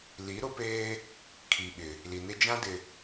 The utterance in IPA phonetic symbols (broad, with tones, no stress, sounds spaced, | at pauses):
l i˨˦ ɾ ʊ˦ p eː˦ | kʰ i˨ ɓ ɪ˨ | l i˨ n ɪ˦ d͡ʒ ã˦ d ɪ˨